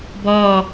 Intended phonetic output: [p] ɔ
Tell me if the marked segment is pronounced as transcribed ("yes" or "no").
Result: no